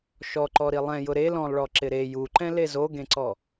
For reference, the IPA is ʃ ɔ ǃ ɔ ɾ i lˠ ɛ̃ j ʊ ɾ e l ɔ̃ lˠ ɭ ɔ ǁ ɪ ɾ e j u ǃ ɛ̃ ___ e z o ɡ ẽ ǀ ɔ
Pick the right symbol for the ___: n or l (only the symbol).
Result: l